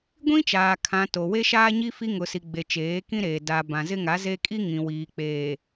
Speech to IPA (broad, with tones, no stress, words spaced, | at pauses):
ɡʷĩ˦t͡ʃaː˨ kʰã˨ to˨ we˦ʃaː˦ɲi˦ fi˦ŋʊ˨si˨ɡ͡be˨ t͡ʃeː˨˦kĩ˦ɾeː˨ da˨ bã˨zɪ˦ŋa˨˦ze˦ kʼi˦ŋĩ˨wiː˨ k͡peː˨